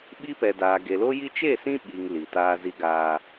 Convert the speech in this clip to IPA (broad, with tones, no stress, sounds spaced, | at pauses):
ɓ i˦ p ɛ˨ d aː˨ ɡ e˨ l o˦ j i˦ t͡ʃ e˦˨ s ĩ˦ ɓ i˨ ŋ l i˨ t aː˦ z i˦ ɡ a˨